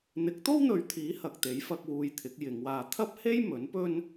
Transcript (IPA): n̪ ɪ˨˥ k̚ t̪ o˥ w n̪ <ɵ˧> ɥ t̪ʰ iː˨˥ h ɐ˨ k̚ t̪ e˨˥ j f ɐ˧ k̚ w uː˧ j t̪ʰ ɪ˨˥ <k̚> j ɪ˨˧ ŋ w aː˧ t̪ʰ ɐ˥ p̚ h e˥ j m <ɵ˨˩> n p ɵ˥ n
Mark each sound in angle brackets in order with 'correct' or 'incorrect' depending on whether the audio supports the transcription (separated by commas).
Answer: incorrect, correct, incorrect